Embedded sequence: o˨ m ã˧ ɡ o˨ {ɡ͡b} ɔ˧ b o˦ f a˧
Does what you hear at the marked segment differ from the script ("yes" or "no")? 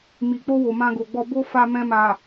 no